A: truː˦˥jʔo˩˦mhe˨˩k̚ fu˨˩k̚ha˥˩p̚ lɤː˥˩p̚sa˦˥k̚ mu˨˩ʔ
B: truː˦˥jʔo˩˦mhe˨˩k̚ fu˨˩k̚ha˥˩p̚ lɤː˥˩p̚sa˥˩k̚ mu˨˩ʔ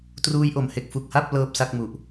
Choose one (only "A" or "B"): B